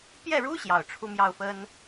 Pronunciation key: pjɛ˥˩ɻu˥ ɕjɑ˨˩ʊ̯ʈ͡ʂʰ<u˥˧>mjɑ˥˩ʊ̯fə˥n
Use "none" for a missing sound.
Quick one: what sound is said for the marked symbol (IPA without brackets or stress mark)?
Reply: u˥˧